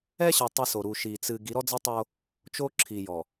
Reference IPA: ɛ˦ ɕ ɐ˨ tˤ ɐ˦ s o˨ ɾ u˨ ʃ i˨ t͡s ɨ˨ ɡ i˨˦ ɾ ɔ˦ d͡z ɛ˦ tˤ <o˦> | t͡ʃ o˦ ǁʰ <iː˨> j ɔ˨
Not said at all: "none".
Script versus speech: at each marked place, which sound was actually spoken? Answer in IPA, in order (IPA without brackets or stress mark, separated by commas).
o˦, i˨